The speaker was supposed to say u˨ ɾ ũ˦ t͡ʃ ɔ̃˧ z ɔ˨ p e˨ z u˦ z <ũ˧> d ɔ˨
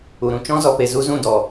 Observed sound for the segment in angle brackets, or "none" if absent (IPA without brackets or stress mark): ũ˦˨